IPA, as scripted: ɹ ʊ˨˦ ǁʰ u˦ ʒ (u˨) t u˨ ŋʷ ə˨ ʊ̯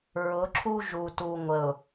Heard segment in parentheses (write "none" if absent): u˨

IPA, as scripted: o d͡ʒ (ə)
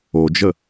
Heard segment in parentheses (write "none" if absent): ə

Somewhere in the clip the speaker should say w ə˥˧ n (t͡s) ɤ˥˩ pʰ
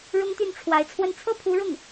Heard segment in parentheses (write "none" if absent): t͡sʰ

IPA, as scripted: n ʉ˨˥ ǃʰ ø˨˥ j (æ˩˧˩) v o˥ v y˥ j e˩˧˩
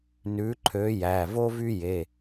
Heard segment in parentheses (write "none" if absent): æ˩˧˩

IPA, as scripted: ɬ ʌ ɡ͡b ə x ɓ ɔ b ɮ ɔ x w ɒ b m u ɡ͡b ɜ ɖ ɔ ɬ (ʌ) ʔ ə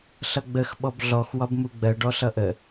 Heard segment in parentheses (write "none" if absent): ʌ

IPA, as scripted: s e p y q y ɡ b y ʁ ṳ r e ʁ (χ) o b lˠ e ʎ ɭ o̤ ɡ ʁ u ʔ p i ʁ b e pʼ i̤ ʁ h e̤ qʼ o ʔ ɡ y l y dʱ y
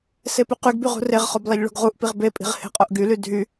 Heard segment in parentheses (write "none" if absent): χ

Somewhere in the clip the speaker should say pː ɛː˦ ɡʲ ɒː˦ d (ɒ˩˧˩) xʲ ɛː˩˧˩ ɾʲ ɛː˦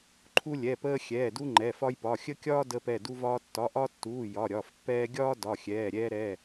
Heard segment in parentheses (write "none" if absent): ɒ˩˧˩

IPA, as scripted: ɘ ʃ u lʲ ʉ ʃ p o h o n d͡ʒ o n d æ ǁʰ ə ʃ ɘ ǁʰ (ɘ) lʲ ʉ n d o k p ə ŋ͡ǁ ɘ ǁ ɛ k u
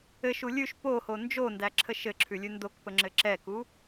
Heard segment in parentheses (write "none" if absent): ʉ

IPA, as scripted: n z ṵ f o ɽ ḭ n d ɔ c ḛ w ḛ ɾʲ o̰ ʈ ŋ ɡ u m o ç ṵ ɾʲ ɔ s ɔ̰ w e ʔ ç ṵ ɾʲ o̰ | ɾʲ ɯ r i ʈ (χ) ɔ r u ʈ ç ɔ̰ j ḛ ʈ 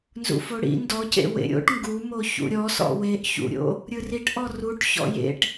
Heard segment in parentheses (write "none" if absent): ʔ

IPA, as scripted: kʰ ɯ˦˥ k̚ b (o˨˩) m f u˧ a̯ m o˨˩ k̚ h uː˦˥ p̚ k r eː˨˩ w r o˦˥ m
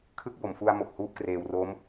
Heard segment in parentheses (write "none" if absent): o˨˩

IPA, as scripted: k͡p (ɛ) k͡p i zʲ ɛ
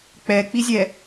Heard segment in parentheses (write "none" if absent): ɛ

